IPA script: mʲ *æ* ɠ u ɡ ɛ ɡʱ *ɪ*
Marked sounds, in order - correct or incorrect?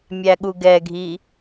correct, incorrect: i

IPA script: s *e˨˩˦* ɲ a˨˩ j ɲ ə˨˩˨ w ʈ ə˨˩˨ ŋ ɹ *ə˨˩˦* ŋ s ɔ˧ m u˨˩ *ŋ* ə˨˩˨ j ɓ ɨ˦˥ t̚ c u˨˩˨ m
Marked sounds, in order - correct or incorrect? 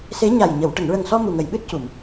incorrect: e˧˥, incorrect: ə˨˩, correct

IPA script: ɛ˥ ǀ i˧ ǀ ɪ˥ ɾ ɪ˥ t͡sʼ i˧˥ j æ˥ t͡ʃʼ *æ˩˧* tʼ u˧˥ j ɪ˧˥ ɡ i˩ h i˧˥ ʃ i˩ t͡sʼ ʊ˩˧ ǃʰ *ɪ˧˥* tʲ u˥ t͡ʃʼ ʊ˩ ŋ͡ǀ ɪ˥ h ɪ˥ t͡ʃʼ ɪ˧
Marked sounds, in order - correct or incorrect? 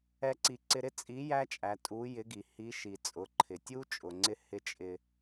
correct, incorrect: ɪ˩

